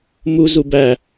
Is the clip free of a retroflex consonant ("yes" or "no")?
yes